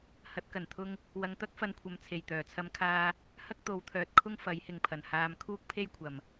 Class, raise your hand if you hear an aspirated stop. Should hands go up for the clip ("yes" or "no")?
yes